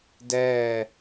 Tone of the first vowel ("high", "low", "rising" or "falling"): falling